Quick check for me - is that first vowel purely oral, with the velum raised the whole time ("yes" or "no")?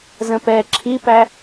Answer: no